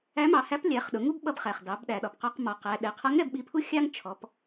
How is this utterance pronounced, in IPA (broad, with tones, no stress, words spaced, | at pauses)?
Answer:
æ˧˥mɑ˩˧hæ˧˥p lʲæ˩˧χɗʊ˩˧ ŋu˥b ɓʌ˧bχæ˩χ dɑ˩˧bɗæ˩ɗɒ˩pqɔ˧q mɒ˩˧qæ˩˧ ɗɛ˩˧qʰʌ˧˥ŋ ɾɛ˧bɓi˧pʰu˥ xʲɑ˥ŋt͡ʃʰɔ˩˧p